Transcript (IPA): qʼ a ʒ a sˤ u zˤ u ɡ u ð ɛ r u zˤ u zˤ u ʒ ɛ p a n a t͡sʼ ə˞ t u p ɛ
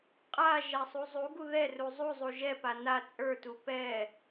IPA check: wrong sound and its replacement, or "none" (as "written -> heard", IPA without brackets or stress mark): none